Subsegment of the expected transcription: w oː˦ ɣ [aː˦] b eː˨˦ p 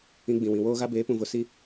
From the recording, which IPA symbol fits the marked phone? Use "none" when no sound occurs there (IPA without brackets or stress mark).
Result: a˦